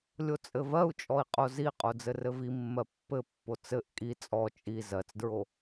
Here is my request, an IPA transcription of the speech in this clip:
lʲ o t͡sʼ ɘ v ɜ u̯ t͡ʃʼ ɔ i̯ qʼ o z i qʼ o d͡z ɘ r ɘ v i mː ɜ pː ɘ pː o t͡s ɘ ʔ kʼ i t͡sʼ ɔ t͡ʃʼ i z ɜ t͡s d ɹ o

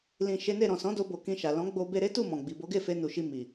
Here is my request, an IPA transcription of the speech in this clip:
l ĩ˨ ʃ e˨˦ n e˦˨ ɾ ɔ̃˨ s ɔ̃˨˦ d o˧ b o˨ k ĩ˧ ʃ a˨ l ɔ̃˨˦ ɡ͡b o˧ b e˧ ɾ e˦ t u˦˨ m ɔ̃˨ ɡ͡b i˨ b o˨˦ ɡ e˦˨ f e˧ n u˨ ʃ i˧ m i˨

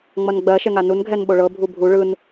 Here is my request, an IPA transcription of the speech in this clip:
ŋ͡m ʌ n ɡ͡b ɜ ʃ ɛ ŋ a n u n ɡʱ ɛ n ɓ o ɭ ɤ bʱ u bʱ u ɭ ɯ n

